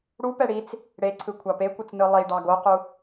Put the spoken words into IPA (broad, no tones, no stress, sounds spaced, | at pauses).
ɽ u p ɛ ɽ i t͡s | ɽ e ǀʰ ɯ kʷʰ ɑ p e kʷ ɯ t͡s n ɯ lˠ i ɖ ɑ ɡ o q u